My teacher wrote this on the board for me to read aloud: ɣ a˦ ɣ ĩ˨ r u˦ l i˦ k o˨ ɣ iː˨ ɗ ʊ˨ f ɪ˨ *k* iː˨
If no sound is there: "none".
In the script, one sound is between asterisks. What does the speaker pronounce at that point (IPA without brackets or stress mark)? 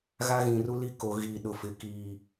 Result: k